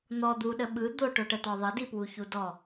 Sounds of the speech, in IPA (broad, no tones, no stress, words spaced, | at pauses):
n̪ɔ d̪uɗə ɓɯ d̪oʈoʈət̪ɔ ðˤədipwuçu dɔ